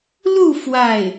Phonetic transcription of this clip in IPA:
l u˥˧ f w a˥˩ ɪ̯

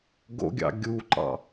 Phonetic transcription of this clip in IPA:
ɡ o̰ ɡʲ ɑ̰ ɡʲ u ǃ ɑ̰

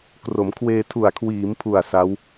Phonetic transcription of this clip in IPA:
k r o˩˦ m kʰ w eː˧ tʰ u˨˩ a̯ kʰ w iː˩˦ m pʰ u˨˩ a̯ s a˦˥ w

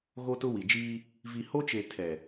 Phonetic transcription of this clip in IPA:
ɣ o˦ t ʊ˦ w i˨ d͡ʒ iː˦ | v i˨ h o˦ t͡ʃ e˨ tʰ ɛ˨

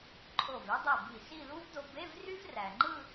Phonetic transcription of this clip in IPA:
ǃʰ o˧˩ v e˥ dˤ i˧˩ b i˧˩ s i˥˧ l u˥ v d o˧ b e˧˥˧ v r y˥ v r æ˩ ŋ͡ǃ ɯ˥˧

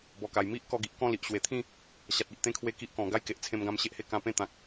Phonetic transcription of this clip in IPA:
b ɔ˨˩ k a˨˩ j m i˦ ʔ k ɔ˧ ɡ i˨ ʔ k ɔ̃˥˧ l i˨ ʔ ɕ w e˨˩ t̪ʰ ĩ˥˧ | ɕ a˨ t̚ i˨ ʔ t̪ ẽ˦ kʰ w e˦ k i˦ ʔ k ɔ̃˨˩ ɡ a˦ j k e˨ ʔ t͡sʰ ẽ˧ m ɡ ã˧ m ɕ e˦ ʔ h e˧ k ã˧ p ẽ˥˧ t̪ ã˨ k̚

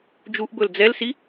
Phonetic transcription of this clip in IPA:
d͡ʒ u ʔ b ɵ l d͡z ɛ l s i

